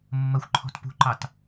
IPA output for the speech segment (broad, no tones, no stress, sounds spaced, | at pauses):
mː ə xʷ ǃʰ ɔ̤ t p ṳ ǃ ɑ t